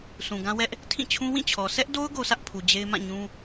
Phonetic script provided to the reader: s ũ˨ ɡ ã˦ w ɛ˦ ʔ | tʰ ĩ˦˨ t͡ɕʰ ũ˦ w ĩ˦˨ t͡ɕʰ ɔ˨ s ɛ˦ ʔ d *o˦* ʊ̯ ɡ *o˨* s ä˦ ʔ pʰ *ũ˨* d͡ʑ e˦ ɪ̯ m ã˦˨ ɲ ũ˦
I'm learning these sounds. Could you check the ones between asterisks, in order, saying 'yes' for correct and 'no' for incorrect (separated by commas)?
yes, no, no